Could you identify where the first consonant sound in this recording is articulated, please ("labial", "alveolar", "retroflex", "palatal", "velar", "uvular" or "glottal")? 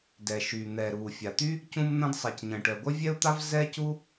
alveolar